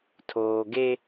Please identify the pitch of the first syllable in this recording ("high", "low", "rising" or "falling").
low